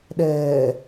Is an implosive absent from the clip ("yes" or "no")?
no